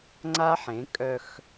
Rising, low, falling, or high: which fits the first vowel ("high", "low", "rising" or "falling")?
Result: high